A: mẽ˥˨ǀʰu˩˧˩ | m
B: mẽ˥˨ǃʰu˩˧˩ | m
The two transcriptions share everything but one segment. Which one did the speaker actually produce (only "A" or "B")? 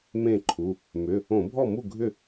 B